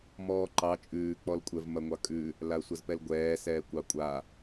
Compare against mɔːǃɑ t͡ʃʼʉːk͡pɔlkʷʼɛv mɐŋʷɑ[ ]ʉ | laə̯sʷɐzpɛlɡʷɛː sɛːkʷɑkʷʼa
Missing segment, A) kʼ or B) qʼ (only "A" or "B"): A